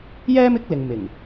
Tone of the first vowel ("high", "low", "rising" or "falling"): high